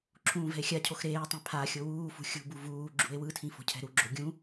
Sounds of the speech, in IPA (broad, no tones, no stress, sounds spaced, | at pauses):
ǁʰ ũː v ɛ̤ e̯ xʲ a cʰ o x ɾ eː tˤ ɛ̃ pʰ a xʲ o w uː f ṳ xʲ ṳ b u v uː ɡ͡ǁ ṳ e̯ w ɯ tʰ ĩ f o̤ cʰ ɛ̤ ɾ u ɡ͡ǁ o ɡʲ ũ